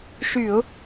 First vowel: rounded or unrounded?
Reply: rounded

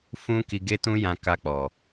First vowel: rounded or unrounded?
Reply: rounded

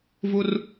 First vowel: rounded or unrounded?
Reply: rounded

